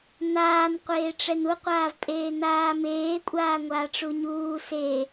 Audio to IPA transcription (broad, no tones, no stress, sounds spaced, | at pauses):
n̪ aː n qʷ eː ʈ͡ʂ ɛ n u qʷ aː v pʼ eː n̪ aː m eː kʷʼ aː ŋʷ aː ʈ͡ʂ u ɲ uː s e